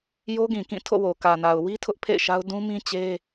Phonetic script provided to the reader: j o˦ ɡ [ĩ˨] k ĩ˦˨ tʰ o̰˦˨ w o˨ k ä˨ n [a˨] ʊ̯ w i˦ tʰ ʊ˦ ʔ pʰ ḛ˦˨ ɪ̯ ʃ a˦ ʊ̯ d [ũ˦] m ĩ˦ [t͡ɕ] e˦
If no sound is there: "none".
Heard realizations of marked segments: ĩ˨, a˨, ũ˦, t͡ɕ

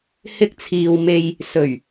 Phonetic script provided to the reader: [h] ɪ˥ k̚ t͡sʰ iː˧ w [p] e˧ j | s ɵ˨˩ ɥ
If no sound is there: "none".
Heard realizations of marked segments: h, m

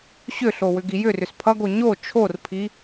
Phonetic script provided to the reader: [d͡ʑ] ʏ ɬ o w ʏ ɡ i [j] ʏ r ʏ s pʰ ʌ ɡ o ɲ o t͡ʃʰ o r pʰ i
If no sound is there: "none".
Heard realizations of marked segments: ɕ, j

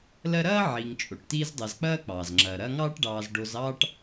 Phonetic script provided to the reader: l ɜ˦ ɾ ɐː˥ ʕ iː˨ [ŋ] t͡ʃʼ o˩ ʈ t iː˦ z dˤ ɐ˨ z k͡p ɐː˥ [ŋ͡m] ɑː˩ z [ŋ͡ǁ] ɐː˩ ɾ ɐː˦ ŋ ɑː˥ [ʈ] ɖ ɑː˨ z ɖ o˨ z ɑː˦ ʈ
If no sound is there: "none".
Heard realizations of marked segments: ŋ, k͡p, ŋ͡ǁ, ʈ

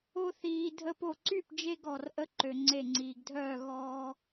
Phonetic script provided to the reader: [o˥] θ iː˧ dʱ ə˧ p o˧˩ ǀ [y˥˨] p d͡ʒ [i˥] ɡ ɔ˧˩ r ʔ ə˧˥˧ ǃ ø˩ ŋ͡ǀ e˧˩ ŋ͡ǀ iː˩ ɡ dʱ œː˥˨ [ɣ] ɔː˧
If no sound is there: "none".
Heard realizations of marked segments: o˥, y˥˨, e˥, ɣ

